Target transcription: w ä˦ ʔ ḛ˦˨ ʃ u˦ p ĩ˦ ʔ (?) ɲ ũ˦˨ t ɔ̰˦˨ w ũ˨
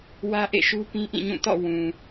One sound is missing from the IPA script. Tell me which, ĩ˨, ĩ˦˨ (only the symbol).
ĩ˦˨